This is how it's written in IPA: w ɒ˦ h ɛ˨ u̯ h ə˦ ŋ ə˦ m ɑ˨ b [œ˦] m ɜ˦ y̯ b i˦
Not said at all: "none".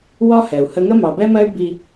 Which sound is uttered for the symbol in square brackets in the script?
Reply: ɛ˦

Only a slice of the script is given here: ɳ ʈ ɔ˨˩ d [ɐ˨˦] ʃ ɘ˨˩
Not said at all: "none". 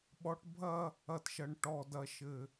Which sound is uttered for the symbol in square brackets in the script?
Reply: ɐ˨˩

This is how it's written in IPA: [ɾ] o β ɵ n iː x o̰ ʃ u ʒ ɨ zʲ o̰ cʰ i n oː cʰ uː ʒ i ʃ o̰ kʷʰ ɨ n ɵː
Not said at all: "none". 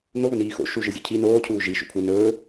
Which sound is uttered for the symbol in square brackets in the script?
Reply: n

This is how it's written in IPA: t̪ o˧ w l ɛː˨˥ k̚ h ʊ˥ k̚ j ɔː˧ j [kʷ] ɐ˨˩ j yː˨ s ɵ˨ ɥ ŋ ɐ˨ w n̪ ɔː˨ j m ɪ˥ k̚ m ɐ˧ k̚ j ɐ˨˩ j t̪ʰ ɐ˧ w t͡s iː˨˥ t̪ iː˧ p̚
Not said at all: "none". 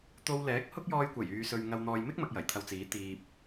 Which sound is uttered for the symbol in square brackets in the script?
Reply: kʷ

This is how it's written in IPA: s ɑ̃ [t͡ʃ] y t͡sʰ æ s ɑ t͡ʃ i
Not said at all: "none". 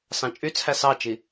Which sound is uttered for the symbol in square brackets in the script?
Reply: t͡ʃʼ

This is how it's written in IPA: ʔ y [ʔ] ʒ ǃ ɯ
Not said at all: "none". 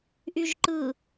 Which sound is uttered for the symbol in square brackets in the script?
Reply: none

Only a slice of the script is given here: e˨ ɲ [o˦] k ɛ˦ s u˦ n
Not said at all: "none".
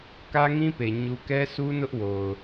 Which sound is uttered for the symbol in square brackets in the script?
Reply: u˦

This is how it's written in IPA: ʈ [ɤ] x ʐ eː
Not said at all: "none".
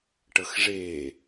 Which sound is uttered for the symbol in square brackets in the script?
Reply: ɤ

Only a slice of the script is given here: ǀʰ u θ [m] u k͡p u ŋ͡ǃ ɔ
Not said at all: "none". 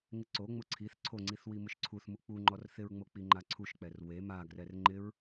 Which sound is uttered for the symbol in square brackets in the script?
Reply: m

